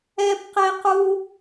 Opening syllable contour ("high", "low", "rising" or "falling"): high